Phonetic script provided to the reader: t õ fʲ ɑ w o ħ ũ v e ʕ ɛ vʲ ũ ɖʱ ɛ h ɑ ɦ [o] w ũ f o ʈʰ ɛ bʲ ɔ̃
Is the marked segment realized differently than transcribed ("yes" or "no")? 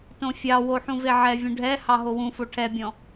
no